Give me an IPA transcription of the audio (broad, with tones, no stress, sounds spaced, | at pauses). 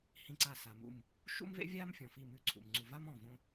h ĩ˦˨ ǀ aː˦˨ s a˨ m ṵ˦˨ m | ʃ ṵ˥ m v ḛ˥ vʲ aː˥ m fʲ ɔ̃˨ f i˦˨ m ʉ˦˨ ǀʰ ṵ˨ m ŋ͡ǀ u˨ v a˥ m ɔ̃˦˨ v õ˥